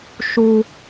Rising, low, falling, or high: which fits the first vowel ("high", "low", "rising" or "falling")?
high